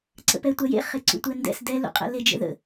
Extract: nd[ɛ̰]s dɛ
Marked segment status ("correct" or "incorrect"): correct